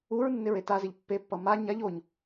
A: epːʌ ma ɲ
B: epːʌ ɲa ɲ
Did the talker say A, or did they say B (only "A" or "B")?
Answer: A